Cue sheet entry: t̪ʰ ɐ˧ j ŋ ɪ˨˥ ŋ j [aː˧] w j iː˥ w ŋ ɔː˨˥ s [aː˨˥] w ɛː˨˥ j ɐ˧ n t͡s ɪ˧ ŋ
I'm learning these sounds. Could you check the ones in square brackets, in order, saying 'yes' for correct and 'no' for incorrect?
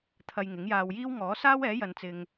yes, no

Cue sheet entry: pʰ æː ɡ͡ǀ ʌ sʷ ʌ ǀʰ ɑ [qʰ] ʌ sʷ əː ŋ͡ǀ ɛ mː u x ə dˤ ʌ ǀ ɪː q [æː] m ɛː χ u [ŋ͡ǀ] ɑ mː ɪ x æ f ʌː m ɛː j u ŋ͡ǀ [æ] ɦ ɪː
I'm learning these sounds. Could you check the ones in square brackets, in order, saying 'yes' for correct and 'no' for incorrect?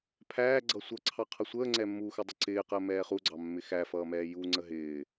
yes, no, no, no

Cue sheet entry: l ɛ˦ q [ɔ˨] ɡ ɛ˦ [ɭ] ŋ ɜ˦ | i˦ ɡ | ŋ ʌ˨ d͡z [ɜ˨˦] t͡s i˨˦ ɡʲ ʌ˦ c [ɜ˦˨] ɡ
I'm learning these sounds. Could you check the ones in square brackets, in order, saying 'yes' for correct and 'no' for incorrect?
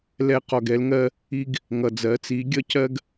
yes, no, yes, no

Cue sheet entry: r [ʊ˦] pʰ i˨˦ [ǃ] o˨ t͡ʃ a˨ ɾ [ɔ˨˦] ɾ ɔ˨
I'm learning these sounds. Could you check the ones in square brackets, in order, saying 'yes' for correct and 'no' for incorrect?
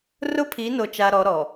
yes, no, yes

